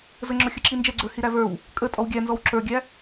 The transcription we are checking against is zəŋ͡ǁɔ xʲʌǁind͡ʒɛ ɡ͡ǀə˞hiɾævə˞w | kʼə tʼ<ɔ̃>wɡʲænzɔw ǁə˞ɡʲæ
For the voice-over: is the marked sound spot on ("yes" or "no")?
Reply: no